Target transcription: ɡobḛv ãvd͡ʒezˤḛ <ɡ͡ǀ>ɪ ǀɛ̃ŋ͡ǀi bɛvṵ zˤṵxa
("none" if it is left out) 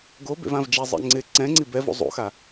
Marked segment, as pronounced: ŋ͡ǀ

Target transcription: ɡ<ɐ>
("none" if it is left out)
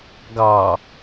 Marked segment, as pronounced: ɑ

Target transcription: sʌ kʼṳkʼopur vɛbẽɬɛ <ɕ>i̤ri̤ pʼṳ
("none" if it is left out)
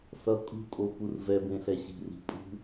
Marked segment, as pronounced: ɕ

